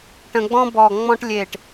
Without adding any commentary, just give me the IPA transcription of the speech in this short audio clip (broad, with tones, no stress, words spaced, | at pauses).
ʈə̃˧ɡ͡bɔ̃˥bɔ˧˩ ŋ͡mɔ̃˥ʈ lʲe˧˩ʈ